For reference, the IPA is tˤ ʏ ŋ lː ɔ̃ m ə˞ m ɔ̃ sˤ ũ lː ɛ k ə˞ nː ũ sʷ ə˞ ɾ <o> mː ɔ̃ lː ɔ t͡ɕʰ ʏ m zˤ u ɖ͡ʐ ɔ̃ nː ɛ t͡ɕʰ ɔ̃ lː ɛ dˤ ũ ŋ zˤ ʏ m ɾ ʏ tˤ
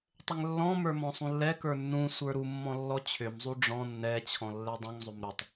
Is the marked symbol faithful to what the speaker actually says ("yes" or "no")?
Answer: no